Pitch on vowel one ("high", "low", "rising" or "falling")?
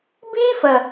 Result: high